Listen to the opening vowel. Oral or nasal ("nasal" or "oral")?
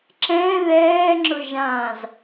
nasal